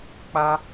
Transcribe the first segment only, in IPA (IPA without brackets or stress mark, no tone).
k͡p